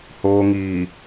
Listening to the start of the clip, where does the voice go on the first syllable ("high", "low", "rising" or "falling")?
low